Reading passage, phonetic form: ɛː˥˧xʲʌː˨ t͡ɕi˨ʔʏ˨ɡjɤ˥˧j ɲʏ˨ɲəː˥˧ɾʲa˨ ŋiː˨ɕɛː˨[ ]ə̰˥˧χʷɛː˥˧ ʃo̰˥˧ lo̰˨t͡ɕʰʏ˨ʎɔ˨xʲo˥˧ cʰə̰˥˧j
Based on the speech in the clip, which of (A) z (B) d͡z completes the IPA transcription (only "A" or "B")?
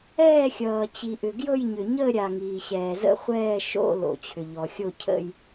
A